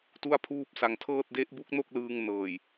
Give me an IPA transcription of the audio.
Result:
tu˥˩a̯pʰuː˥˩p̚sa˧ŋ tʰɤː˥˩t̚ de˦˥ʔ bu˦˥k̚no˥˩k̚lɯː˧ŋ nɤː˨˩j

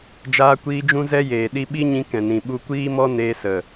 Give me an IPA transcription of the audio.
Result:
d͡ʒaː˧kʷiː˧ d͡ʒũ˦zɛ˦jeː˨ɗi˦ ɓi˦ɲĩ˧ kɛ̃˨nĩ˨ ɓu˧kʷiː˦mɔ˦ neː˧sə˨

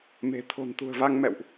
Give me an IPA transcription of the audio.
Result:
me̤˨˩ t̪ʰo̤˨˩nt̪ṳ˨˩ə̯va˧ŋ mɛ̰˧˨wʔ

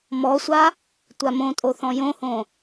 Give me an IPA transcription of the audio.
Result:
mɔsʷa | tʷamõtʼo θɔ̃jõhõ

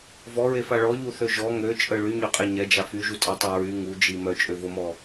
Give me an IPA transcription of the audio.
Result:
vɔɹefa ɭɔʎuθø ʒɔ ŋøt͡ʃʼə ɭyɲøqʼe ɲɛd͡ʒa fyʒutʼɛtˤø ɹy ŋud͡ʒi mœt͡ʃʼøvomɔ

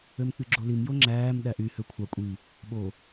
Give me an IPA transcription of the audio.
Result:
ømk͡pyɡ͡ǁolim joŋ͡ǁæːm ɗæʔy høkʷʰɑ kʷʼi | ɓo

